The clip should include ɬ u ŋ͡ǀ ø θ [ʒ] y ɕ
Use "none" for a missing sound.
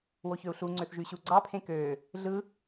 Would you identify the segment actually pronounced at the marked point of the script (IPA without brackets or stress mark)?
ʒ